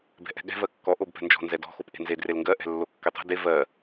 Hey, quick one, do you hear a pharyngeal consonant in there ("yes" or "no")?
no